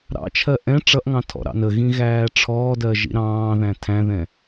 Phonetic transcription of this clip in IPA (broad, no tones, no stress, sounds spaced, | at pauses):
ɾ ɑ̰ t͡ʃʰ ɜ ʔ ɛ̃ ʈ͡ʂ ʌ ʔ ŋ ɑ̃ tʰ ɔ̰ ɾ ɑ̰ n ə ɣ ĩ ɣ æː ʈ͡ʂʰ ɔː d ɜ ʒ ḭ ɾ ɑ̃ː ð æ̃ tʰ æ̃ ð ɛ̃